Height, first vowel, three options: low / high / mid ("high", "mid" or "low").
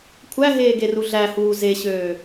low